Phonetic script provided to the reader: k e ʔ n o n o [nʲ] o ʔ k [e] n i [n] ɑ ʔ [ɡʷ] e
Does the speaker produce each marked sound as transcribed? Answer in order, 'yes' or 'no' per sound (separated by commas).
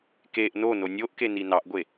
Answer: yes, yes, yes, yes